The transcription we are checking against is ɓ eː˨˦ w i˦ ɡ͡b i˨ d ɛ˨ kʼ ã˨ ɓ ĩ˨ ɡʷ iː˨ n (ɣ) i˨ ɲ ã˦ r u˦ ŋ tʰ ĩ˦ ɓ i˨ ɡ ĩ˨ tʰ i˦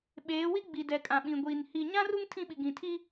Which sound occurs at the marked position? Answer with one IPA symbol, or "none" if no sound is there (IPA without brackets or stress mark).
h